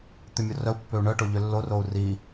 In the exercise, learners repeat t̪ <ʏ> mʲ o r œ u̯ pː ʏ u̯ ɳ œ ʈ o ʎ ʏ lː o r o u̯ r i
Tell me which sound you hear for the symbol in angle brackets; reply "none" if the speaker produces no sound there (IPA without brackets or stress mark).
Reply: ʏ